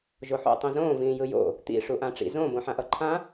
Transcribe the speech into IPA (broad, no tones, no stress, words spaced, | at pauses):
ʒoħo̰ tˤĩzõː vĩːjɯjo̰ | t̪ḭ ʂuʔãʈ͡ʂḭ zõ bõħãʔʌǃʰã